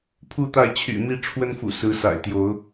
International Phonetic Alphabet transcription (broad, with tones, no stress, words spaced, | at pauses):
pʰu˥˨t̪a˥˨ɪ̯ t͡ɕʰy̰˨˩mi˥˨ ʈ͡ʂʰwə˦nfṵ˨˩ sɹ̩˨˦sa̰˨˩ɪ̯t̪jo˨˦ʊ̯